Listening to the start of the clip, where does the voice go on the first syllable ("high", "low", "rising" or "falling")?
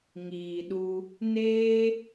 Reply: low